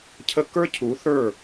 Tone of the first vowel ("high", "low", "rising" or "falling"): high